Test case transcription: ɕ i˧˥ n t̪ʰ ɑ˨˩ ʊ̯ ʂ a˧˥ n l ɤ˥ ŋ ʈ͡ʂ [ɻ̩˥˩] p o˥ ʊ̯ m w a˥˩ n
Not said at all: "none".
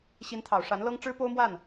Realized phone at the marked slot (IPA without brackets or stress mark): ɻ̩˥